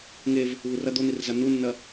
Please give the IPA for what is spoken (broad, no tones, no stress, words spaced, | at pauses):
ŋev | βurɐ d̪on̪irza n̪unːɐ